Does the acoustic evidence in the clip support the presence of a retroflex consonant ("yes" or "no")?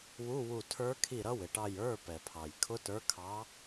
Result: yes